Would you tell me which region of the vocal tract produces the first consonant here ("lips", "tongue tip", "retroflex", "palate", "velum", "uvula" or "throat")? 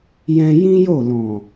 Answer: palate